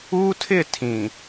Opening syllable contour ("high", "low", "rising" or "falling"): high